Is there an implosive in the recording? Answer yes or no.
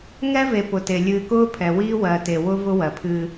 no